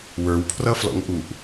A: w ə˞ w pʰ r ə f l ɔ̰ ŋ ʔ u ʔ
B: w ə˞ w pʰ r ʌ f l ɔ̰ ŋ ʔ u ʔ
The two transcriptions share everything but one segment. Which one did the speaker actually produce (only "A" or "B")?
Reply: B